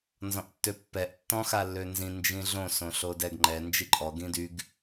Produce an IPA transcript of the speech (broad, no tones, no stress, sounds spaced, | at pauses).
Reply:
n z ɔ̃ ʔ tː ø pː ɛ ʔ tː ɔ̃ x a lː ø n z ĩ n d͡ʒ ĩ ɮ õ s õ ɬ o d ɛ ɡ ŋ͡ǃ ɛ n d͡ʒ i ǃʼ ɔ ɡ ĩ d y ɡ